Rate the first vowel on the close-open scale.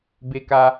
mid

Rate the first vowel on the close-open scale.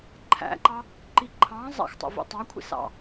open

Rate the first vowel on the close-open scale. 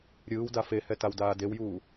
close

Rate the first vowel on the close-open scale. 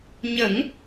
mid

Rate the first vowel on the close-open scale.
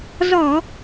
mid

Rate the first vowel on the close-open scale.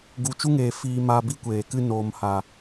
close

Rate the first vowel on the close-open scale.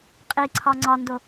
close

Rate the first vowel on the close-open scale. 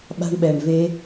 open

